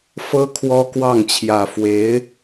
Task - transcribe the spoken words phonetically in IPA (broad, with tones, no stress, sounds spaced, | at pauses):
f ɤ˥ kʰ w ɔ˥ k w ɑ˥˩ ŋ t͡ɕʰ j ä˨˩ f w e˧˥ ɪ̯